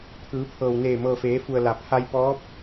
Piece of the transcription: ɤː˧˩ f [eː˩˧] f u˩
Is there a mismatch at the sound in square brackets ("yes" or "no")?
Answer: no